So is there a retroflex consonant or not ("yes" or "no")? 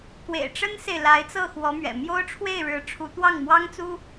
yes